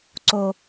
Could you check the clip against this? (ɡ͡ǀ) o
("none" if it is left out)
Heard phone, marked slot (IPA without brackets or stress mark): ǀ